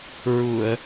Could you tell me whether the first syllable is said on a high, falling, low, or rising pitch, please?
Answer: low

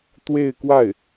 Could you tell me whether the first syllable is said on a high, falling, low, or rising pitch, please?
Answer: falling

